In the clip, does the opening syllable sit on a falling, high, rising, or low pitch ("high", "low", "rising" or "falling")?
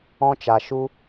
high